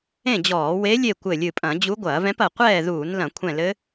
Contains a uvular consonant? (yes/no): yes